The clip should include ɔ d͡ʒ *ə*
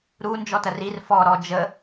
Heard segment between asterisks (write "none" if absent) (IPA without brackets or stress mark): ə